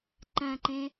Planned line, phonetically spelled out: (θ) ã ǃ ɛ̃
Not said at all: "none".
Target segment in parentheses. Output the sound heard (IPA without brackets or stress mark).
ǃ